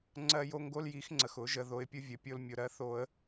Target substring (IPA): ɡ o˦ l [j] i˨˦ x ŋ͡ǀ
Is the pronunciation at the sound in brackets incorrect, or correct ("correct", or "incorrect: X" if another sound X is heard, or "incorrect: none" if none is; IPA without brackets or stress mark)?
correct